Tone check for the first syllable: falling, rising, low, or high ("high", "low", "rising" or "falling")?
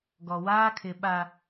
low